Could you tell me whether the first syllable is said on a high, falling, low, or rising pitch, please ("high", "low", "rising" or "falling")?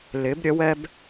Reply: rising